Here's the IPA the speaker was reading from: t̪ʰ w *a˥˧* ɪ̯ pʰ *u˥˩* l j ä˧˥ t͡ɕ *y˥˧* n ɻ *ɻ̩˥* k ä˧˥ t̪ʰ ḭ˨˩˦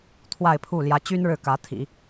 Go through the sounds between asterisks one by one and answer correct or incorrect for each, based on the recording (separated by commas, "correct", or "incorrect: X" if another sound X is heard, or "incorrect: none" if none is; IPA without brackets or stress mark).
correct, correct, incorrect: y˥, incorrect: ɻ̩˥˩